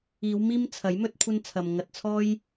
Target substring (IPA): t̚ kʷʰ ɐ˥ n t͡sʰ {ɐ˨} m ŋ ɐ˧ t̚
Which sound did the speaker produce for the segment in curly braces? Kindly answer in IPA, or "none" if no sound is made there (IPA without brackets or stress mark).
ɐ˨